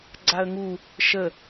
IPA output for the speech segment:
ɡ͡ǀ a ə̯ ŋ u | ʃ ə

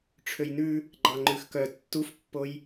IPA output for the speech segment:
ʈ͡ʂʰ ø j n ʉ | ɡ͡ǃ ɑ ŋ͡ǃ ʉ x k œ tː u f pː o j

